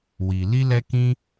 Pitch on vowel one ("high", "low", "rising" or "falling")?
low